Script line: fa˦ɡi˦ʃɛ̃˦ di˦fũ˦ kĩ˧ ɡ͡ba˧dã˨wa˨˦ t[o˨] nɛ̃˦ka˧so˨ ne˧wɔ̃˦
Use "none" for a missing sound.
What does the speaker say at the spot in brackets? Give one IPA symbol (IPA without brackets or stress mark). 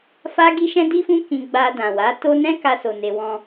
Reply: o˦